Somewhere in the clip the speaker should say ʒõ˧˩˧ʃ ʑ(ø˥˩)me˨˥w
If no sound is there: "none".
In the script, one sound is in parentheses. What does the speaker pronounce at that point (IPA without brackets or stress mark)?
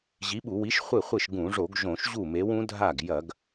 u˥˩